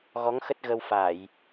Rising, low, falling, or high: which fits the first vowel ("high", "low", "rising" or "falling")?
rising